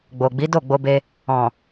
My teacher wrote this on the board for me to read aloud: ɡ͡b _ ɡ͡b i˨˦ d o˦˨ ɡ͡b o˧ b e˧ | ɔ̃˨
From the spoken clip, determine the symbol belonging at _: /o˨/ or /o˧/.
o˨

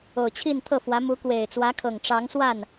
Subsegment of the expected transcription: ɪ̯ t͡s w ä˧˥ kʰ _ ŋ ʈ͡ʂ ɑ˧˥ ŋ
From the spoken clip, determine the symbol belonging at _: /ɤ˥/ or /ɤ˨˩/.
ɤ˨˩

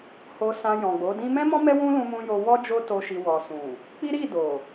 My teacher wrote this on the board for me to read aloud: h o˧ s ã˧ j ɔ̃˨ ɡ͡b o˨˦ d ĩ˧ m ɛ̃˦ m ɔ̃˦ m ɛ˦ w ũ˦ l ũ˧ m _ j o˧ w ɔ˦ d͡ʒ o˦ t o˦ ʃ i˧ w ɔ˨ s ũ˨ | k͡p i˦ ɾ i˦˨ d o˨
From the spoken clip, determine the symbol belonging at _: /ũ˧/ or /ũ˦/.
ũ˧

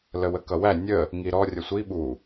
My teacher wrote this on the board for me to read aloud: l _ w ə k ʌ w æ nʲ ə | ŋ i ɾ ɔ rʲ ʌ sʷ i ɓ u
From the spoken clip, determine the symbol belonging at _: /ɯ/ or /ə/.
ə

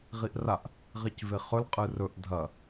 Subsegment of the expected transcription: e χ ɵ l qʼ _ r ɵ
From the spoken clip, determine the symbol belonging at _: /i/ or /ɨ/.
ɨ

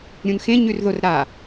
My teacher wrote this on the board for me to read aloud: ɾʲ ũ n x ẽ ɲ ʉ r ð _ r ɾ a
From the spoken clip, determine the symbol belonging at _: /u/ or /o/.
o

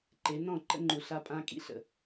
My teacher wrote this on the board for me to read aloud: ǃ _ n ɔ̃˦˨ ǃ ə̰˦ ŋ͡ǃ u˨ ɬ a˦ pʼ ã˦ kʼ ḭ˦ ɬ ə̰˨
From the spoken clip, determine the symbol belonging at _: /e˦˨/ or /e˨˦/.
e˨˦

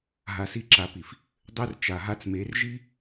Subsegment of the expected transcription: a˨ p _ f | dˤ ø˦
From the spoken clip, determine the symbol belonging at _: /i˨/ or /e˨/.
i˨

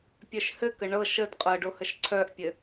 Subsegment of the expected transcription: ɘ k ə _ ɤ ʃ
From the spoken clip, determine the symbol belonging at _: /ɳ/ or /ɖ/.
ɳ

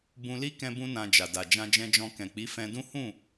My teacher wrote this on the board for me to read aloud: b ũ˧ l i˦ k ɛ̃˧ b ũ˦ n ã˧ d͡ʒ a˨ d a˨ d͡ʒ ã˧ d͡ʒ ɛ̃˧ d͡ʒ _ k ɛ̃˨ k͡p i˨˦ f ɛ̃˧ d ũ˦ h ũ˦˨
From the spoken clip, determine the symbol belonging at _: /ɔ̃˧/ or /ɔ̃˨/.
ɔ̃˧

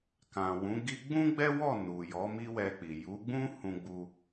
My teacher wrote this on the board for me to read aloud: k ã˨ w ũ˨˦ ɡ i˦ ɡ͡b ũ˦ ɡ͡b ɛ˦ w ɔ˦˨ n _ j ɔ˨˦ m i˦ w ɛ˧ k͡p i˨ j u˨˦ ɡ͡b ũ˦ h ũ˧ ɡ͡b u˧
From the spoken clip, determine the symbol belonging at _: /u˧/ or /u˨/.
u˨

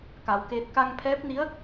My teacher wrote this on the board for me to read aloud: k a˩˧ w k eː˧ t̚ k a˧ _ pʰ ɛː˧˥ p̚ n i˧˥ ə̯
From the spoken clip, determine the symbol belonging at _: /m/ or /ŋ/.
ŋ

